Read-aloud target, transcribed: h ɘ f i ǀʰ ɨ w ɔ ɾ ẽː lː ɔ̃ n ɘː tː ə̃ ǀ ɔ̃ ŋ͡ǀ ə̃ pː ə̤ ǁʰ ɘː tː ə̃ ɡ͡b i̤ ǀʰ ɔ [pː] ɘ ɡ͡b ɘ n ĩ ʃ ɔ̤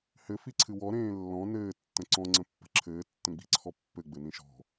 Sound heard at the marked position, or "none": pː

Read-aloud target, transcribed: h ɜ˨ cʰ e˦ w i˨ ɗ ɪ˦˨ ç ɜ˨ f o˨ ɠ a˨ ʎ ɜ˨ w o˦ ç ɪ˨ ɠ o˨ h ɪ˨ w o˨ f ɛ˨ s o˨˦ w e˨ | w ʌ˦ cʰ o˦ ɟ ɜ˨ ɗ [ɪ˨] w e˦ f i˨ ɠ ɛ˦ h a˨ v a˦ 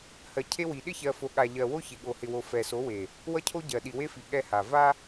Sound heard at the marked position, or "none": i˨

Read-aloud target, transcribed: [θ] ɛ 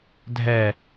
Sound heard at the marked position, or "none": dʱ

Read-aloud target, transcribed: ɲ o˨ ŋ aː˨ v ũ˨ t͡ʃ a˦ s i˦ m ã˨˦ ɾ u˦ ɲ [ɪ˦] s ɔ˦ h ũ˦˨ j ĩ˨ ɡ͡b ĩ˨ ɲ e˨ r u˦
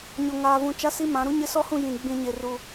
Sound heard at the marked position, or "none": ɪ˦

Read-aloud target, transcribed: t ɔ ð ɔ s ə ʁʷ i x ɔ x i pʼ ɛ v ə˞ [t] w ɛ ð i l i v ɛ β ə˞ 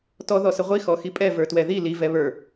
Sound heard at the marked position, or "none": t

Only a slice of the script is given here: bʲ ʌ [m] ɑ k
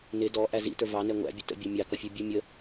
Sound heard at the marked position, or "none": mʲ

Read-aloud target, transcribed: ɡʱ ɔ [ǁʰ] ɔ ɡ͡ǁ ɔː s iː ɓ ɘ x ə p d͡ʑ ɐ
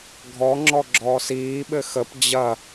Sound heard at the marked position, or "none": ŋ͡ǁ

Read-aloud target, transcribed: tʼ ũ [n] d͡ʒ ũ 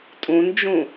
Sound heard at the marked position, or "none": n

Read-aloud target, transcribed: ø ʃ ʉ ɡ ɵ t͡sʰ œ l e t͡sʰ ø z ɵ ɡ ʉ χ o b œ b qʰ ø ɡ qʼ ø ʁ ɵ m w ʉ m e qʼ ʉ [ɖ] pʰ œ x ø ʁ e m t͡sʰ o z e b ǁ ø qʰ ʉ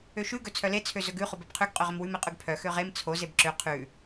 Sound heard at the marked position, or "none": ɡ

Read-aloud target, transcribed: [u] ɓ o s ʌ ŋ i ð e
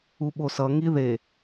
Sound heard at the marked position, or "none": u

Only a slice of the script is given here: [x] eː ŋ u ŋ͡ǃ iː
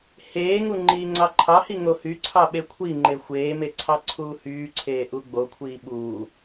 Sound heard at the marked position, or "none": h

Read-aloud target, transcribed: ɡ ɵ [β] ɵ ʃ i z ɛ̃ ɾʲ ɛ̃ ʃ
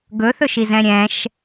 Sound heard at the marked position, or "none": θ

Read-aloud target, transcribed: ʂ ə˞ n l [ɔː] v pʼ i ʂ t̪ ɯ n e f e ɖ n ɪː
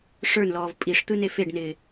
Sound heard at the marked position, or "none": ɔː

